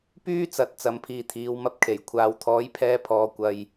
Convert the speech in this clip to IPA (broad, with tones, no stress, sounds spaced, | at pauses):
p yː˥ t͡s ɐ˨˥ t̚ t͡s ɐ˨˧ m pʰ iː˨ t̪ʰ iː˨˧ w m ɐ˧ p̚ kʰ e˨˩ j kʷʰ aː˨˧ w t̪ʰ ɔː˨˥ j pʰ ɛː˧ pʰ ɔː˨˧ kʷ ɐ˧ j